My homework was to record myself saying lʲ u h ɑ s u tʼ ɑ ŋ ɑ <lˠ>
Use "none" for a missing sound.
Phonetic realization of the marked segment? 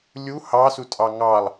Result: lˠ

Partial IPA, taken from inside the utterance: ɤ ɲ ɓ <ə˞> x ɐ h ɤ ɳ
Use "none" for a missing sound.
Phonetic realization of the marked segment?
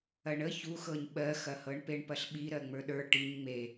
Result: ɜ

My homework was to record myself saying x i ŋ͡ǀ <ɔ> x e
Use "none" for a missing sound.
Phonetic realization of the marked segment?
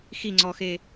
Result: ɔ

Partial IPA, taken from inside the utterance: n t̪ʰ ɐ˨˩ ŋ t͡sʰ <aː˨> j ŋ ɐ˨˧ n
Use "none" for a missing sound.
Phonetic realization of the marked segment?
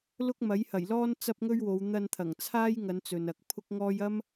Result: aː˥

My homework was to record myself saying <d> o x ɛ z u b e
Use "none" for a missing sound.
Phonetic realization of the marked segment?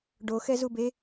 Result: ɖ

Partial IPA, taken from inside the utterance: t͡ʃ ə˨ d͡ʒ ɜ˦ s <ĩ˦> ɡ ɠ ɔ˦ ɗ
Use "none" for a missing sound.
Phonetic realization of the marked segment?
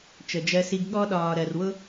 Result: i˦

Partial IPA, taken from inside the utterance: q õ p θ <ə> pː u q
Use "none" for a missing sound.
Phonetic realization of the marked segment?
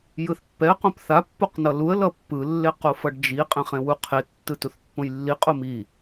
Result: a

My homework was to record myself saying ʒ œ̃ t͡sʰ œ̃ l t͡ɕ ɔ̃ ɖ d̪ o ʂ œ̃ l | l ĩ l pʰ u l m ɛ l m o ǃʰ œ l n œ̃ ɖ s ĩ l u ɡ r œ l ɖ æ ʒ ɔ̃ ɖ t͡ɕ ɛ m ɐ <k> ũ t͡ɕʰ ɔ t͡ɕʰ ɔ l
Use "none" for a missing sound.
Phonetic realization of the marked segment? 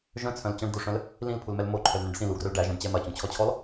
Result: t͡ɕ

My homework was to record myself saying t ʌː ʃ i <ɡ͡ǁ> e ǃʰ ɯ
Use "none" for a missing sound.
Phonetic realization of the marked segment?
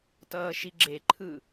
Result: ɡ͡ǁ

